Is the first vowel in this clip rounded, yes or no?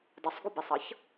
yes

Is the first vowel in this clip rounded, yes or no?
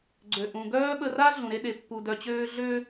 yes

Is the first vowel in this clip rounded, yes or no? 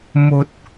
yes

